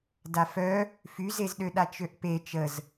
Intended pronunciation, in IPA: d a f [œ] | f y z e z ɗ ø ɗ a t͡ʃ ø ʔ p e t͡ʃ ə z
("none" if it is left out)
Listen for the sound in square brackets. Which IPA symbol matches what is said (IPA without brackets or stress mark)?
œ